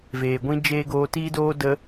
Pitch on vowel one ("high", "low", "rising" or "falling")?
low